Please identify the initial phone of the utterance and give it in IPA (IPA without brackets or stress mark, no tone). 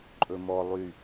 ǃʼ